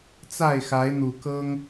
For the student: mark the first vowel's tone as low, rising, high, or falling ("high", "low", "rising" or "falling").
falling